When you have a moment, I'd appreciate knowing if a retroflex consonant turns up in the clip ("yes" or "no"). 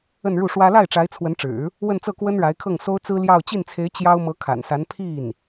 yes